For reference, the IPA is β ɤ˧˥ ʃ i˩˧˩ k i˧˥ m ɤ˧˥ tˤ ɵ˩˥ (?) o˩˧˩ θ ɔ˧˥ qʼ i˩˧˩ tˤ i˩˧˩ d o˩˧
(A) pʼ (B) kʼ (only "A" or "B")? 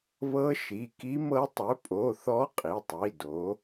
A